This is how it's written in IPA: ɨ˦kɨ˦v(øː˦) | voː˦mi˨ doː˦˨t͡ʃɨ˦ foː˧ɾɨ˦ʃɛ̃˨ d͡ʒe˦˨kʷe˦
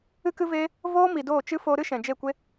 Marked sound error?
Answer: yes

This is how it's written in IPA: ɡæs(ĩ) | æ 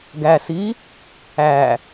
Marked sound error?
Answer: yes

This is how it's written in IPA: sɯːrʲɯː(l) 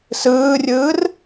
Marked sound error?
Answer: yes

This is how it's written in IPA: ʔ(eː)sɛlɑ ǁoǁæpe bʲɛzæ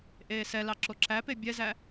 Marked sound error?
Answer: no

